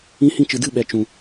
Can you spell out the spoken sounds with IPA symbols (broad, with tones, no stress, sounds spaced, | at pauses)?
ĩ˦ h ĩ˦ t͡ʃ ɨ˨ d ɨ˦˨ ɓ ɛ˨ t͡ʃ ũ˨